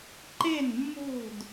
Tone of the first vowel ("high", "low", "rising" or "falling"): falling